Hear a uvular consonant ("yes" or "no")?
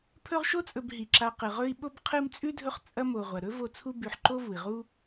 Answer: yes